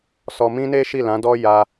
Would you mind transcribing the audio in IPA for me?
s ɔ˧ m ĩ˦ n e˦ ʃ i˦˨ l ã˨˦ d ɔ˦ j a˧

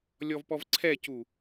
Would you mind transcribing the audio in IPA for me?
lʲ ɔ v p ɔ v ǀʰ ɛ c u

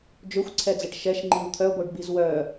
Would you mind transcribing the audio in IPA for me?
d͡ʒ ø xʷ ǀʰ ɛ d͡z ɛ ʈ ʃ ɛ ʃ ŋ͡ǃ i w t̪ʰ œ ɡʷ œ ɖ b i z w œ

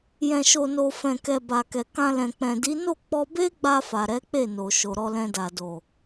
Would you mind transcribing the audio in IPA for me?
j ɛ̃˨ ʃ o˨ n o˨ f ɛ̃˨ k ɛ˨ b a˨ k ɛ˨ k ã˧ l ɛ̃˨ k͡p ɛ̃˨ d i˨˦ n o˦˨ k͡p ɔ˧ b e˦ ɡ͡b a˧ f a˨ ɾ ɛ˨˦ k͡p e˦˨ n o˨ ʃ o˨ ɾ ɔ˧ l ɛ̃˧ d a˨ d o˨

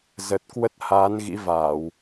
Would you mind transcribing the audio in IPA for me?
z ə˨˩ t̚ k w ə˦˥ t̚ h aː˨˦ n ɣ ḭ˧˥ v aː˧˩˨ w

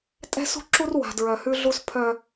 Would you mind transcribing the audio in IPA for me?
tʼ ɛ̤˦ s ṳ˦ ǁ u˦ r w a̤˨ d ɹ œ˨ h ʉ˦ ɮ u˦ s pʰ œ˦

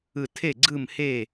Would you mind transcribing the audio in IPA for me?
ɯ˥˨ tʰ e˥˨ ɡ͡ǀ ɯ˥˨ m h e˥˨

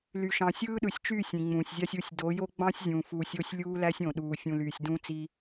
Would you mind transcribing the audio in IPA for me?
l y˨ ʃ ɑ̃˨ sʲ ɯː˦ ɗ ɯ˨ sʲ t͡ʃ yː˦˨ sʲ ĩ˨ ŋ͡m ũː˨ sʲ zʲ ɑ˦ sʲ u˦˨ sʲ d o˨˦ j o˦ ɡ͡b ɑ̃˦ sʲ zʲ ũː˨ f uː˨ sʲ o˦ sʲ lʲ uː˦ l æ˦ sʲ õ˨ ɗ uː˨ fʲ ũ˨ l yː˨ sʲ d ũ˦ t͡s i˦

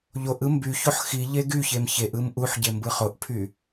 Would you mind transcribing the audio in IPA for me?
ʎ o ʔ ɯ m b y ç o ħ x i ʎ e ɡ y ç e m ç e ʔ ɯ m ʔ u ħ ɟ e m b ɯ χ o ʔ pʰ y

